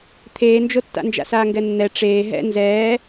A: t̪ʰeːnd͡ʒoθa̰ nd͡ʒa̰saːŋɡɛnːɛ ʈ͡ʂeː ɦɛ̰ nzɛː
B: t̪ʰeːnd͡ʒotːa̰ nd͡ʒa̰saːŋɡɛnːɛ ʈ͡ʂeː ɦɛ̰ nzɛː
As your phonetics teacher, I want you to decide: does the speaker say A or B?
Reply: B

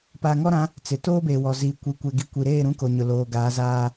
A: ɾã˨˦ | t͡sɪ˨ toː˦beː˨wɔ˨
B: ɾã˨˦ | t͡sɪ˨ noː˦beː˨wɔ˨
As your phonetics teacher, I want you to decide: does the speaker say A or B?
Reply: A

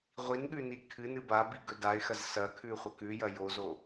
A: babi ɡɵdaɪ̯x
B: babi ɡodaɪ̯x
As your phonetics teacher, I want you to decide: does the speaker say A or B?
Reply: A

